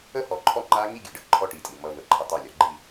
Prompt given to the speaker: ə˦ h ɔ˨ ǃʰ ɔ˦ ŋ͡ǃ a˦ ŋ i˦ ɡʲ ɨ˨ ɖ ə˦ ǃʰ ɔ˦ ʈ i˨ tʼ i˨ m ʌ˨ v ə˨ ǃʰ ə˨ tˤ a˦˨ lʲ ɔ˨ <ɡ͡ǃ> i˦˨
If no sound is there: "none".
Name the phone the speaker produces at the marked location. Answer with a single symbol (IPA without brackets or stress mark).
ɡ͡ǃ